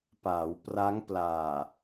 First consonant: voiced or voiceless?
voiceless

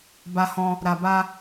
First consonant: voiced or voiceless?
voiced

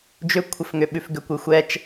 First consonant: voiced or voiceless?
voiced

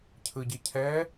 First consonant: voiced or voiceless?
voiceless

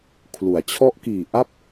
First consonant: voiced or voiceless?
voiceless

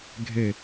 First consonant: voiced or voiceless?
voiced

